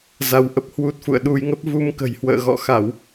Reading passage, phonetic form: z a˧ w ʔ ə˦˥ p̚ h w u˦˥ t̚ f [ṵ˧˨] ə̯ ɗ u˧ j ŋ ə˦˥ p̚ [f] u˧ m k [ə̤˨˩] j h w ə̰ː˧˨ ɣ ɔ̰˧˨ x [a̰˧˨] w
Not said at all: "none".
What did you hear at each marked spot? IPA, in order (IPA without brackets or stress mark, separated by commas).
ṵ˧˨, v, ə̤˨˩, a˧˩˨